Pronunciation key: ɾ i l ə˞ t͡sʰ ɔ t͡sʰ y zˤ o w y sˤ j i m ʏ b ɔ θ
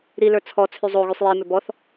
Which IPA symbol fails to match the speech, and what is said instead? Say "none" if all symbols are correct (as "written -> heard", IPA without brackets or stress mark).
w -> ɣ